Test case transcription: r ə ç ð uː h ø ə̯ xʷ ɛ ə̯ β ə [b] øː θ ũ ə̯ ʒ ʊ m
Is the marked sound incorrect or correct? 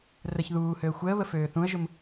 incorrect